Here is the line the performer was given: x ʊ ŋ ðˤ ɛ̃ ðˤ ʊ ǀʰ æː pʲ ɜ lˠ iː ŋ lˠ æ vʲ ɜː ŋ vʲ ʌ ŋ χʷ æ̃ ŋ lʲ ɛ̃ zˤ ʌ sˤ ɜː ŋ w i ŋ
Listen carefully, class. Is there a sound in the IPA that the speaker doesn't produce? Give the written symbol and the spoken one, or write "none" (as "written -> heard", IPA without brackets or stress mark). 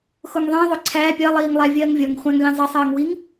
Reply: none